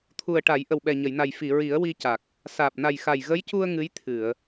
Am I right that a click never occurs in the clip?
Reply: yes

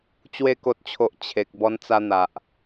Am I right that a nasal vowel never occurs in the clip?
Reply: yes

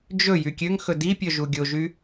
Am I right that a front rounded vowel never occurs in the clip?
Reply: no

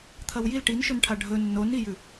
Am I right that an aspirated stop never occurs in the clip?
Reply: no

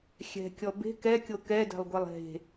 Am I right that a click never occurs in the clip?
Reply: yes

